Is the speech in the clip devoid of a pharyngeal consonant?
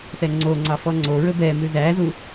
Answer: yes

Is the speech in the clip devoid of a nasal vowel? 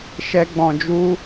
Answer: no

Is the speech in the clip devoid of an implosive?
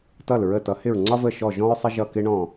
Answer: yes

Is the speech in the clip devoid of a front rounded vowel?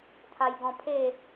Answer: yes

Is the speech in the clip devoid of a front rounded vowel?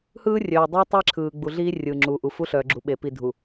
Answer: no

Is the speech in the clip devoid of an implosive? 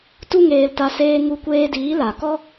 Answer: yes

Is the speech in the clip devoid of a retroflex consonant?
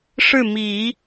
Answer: no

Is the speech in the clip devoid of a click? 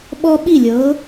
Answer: yes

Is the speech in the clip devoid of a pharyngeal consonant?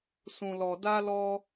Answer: yes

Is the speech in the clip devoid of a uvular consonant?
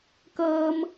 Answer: yes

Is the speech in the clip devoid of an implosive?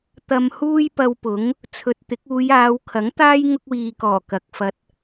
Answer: yes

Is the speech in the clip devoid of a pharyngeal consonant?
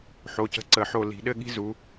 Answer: no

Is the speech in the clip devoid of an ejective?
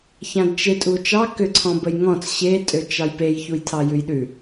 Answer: no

